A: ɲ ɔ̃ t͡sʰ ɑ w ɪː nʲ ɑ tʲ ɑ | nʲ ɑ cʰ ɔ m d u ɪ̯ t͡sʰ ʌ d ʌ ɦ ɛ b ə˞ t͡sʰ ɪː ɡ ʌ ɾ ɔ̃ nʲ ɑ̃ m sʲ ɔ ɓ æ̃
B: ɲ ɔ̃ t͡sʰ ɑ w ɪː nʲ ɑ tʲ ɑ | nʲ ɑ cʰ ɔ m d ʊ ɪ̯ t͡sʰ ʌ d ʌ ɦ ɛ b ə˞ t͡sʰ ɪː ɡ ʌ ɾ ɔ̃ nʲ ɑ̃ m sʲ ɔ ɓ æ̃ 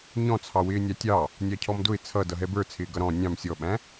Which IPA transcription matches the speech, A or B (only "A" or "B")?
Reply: B